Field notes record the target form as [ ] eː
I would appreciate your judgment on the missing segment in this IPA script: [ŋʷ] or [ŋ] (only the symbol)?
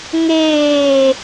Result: ŋ